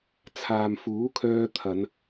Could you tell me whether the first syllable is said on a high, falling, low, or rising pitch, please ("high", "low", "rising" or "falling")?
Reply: low